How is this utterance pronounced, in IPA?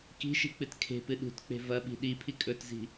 k i̤ ʃ i̤ k͡p ɨ t kʰ e̤ p ɨ ɗ ṳ t k͡p e̤ v ɐ ɓ i̤ ɗ i pʰ i kʼ ɵ t z i̤

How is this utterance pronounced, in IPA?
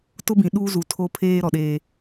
t ʊ˦ b ĩ˨ ɗ uː˦ z u˨˦ tʰ o˦ pʰ eː˦ ɾ ɔ˨ ɗ eː˦

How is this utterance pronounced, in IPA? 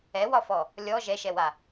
ɛ w ɒ f ɔ | lʲ ɔ ʒ ɛ ʃ ɛ w a

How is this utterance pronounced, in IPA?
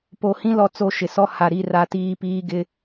p o˨ h ĩ˦ l ɔ˦ t͡s o˦˨ ʃ ɪ˨ s ɔ˦ h a˨ ɾ i˦˨ r a˦ t iː˦ p iː˦ ɡ ɪ˦

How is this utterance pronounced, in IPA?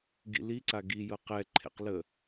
ɡ ḭ l i ǀ a ɡ i j ɤ q ɛ ǃʰ ḛ q l ə

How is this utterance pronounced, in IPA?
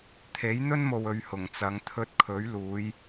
t̪ʰ e˨˥ j n̪ ɵ˥ n m o˨ w ɵ˧ ɥ h ʊ˨˩ ŋ t͡s ɐ˨˧ ŋ t̪ʰ ɵ˧ t̚ kʰ ɵ˨˥ ɥ l uː˨˧ j

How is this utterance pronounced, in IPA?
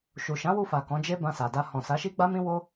ʃ u˨ ʃ ã˨˦ w u˧ f a˨ k ɔ̃˨˦ d͡ʒ e˦ b ã˧ s a˨ d a˧ h ɔ̃˨ s a˨˦ ʃ i˦ ɡ͡b a˦ m ĩ˦ w o˦

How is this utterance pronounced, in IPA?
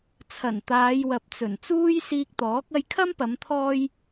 t͡sʰ ɐ˨˩ n t̪ aː˨˧ j w ɐ˨ p̚ t͡s ɵ˨˩ n t͡s uː˥ j s iː˧ k̚ t̪ ɔː˨˥ k̚ ɐ˧ j kʰ ɐ˥ m p ɐ˨˧ m t̪ʰ ɔː˥ j

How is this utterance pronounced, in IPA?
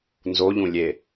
n z o ʎ ũ lʲ e

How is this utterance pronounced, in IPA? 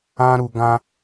ã˦ ɾ u˧ ɡ ã˦

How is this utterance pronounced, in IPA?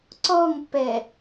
ǀ ɔ ŋ pː ɛ

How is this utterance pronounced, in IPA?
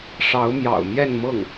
ʂ ɑ˧˥ ʊ̯ m j ɑ̰˨˩ ʊ̯ m j ɛ˥˧ n m ɤ˥˩ ŋ

